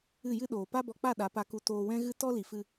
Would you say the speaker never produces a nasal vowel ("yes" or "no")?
no